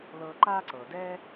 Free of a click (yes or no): no